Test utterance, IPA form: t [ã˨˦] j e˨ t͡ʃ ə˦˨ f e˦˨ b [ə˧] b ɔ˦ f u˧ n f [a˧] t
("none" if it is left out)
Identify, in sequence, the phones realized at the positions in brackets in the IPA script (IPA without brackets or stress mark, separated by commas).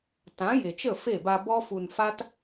ã˨˦, a˧, a˦